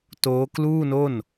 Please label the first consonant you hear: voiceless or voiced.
voiceless